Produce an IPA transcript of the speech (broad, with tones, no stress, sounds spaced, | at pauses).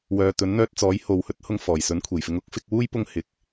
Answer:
w œː˨ t̪ ɵ˨˥ n n̪ œː˧ t̚ t͡s ɔː˨˥ j h o˨ w h ɵ˥ t̚ h ʊ˧ ŋ f ɔː˨˩ j s ɵ˨˥ n kʷʰ e˨˩ j f ɪ˧ ŋ ʊ˥ k̚ f ɪ˨˥ k̚ w uː˥ j p ʊ˥ ŋ h ɪ˨˥ k̚